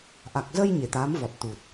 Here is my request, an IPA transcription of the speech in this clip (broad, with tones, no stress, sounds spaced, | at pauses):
ʔ a˨˩ k̚ z ə˧ j ɲ e˧˩ t̪ aː˨˦ m v ɔ˨˩ t̚ t̪ u˨˩ t̚